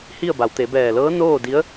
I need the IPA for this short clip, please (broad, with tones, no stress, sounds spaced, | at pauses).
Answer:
h i˥˨ ə̯ b a˩˧ w t̪ e˩˧ b ɛː˧˩ l ɤː˧˥ n oː˥˨ d i˧˥ ə̯